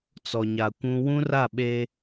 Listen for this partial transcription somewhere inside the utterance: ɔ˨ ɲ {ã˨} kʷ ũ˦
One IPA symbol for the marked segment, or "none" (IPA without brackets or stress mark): a˨